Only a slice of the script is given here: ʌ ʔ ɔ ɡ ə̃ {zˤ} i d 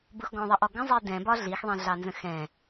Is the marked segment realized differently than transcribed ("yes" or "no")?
no